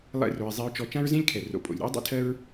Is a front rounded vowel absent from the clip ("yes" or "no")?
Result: yes